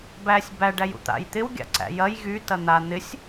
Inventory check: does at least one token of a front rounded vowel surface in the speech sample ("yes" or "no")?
yes